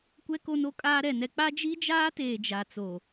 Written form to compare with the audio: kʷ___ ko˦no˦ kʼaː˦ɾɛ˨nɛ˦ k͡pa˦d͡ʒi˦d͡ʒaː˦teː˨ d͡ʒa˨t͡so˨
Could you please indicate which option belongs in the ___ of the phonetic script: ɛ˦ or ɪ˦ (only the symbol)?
ɛ˦